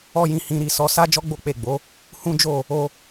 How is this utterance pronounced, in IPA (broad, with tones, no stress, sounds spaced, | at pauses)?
ɔ˦ j ĩ˧ h ĩ˧ ɾ i˧ s ɔ˧ s a˦ d͡ʒ ɔ˦ ɡ͡b o˦ k͡p e˦˨ ɡ͡b o˨˦ | h ũ˦ d͡ʒ o˦˨ | o˧